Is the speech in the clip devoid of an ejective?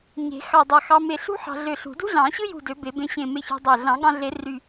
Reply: yes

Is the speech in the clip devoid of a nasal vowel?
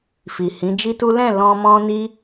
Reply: no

